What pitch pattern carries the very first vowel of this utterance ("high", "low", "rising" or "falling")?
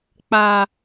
low